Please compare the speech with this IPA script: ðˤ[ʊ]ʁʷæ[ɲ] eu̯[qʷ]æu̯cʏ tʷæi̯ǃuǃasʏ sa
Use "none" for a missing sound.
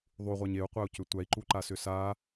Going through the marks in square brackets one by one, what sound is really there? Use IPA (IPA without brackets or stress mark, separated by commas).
u, ɲ, qʷ